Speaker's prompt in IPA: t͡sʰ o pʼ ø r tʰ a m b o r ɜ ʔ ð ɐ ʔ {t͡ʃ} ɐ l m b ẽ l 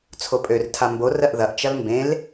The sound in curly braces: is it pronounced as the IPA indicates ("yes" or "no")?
yes